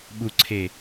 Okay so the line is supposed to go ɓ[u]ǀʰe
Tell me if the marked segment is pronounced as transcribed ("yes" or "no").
yes